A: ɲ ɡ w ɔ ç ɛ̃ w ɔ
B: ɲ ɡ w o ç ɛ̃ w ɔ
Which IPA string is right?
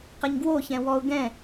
B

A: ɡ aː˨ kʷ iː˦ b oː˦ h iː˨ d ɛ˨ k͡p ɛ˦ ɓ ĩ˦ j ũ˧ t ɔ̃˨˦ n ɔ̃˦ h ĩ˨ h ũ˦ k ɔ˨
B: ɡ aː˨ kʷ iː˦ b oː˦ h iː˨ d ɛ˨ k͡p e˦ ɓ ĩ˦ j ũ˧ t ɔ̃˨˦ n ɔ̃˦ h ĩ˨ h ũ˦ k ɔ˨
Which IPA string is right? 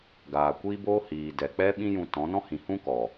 A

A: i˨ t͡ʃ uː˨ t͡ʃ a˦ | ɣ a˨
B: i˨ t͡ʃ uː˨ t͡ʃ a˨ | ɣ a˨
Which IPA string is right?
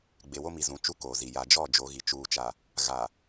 B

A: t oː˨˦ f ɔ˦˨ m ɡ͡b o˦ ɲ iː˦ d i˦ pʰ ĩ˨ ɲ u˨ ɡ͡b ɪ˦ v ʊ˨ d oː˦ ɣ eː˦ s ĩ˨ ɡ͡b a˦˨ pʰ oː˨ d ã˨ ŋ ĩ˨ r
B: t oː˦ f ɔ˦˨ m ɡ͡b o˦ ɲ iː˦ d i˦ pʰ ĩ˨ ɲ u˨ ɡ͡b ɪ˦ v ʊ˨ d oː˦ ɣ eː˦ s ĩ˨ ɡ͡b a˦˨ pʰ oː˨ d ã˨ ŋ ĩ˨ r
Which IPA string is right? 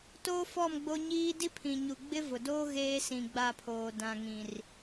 B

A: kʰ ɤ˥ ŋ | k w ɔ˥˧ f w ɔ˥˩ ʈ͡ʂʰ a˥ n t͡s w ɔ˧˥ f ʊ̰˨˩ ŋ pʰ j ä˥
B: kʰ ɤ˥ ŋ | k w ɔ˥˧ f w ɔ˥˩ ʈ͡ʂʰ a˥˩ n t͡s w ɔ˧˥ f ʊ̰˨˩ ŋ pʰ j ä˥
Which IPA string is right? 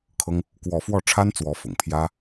A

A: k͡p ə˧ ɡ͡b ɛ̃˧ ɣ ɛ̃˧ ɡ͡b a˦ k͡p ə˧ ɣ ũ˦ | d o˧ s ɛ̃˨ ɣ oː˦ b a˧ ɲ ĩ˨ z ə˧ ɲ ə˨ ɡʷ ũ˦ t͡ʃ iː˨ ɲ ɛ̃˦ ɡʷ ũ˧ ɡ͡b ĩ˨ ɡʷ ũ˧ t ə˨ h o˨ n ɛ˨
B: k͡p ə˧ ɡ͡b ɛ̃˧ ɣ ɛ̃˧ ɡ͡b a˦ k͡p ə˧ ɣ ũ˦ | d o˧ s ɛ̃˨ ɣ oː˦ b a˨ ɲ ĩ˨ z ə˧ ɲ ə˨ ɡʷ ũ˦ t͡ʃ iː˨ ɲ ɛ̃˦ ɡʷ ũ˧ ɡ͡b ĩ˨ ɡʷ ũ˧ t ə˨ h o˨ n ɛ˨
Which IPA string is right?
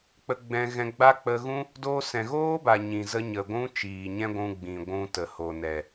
B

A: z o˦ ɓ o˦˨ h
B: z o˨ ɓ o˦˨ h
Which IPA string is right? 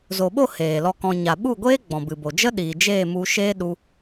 B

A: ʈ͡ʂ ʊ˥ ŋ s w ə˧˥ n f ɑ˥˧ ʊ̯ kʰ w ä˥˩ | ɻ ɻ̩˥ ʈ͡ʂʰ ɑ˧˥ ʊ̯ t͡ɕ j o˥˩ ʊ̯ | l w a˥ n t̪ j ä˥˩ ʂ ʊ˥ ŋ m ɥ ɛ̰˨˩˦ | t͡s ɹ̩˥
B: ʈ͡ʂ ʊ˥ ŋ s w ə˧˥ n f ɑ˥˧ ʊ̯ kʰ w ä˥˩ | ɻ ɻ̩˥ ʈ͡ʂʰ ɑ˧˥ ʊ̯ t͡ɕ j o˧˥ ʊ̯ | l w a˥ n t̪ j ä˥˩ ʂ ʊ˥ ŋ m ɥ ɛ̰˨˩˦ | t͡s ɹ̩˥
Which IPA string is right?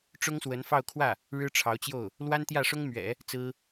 A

